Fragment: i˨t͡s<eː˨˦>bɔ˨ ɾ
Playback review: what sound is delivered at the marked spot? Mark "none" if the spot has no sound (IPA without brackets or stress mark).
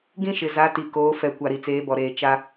eː˨˦